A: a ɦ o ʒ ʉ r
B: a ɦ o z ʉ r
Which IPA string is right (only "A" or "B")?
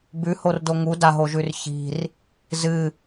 A